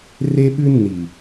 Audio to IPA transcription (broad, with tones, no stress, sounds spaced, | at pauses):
r e˦ ɓ ʉ˦ nː i˨